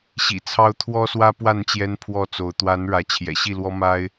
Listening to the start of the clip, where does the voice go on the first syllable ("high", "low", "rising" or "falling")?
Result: low